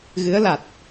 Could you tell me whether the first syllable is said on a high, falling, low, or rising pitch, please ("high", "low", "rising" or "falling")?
rising